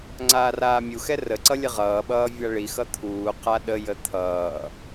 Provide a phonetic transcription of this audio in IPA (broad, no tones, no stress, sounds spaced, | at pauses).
ŋ͡ǀ aː r aː mʲ u x ɛ r ə ǀ ʌ lʲ ə ʁ ʌː ɓ ʌː vʲ a ɭ i x ʌ t̪ʰ uː q a ɗ ə j ə t̪ʰ ʌː